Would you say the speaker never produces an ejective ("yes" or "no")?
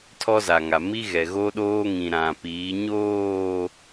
yes